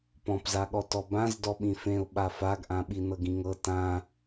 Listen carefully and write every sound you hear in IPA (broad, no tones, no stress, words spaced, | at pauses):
pɔ̃pzaɠɔ tɔbãz dɔɓĩfẽʊ̯ ɓafaɡʔãɓi nɤɡĩŋɤ tã